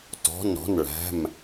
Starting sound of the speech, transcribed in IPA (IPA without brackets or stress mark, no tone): t